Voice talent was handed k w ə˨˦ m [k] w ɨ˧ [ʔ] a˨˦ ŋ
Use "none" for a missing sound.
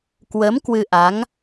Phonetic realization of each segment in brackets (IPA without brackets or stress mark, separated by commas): k, ʔ